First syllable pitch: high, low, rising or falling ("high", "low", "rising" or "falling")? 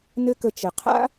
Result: high